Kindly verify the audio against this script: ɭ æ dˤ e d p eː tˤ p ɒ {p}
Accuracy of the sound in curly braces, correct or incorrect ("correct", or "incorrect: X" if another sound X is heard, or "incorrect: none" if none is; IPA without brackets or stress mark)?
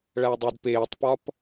correct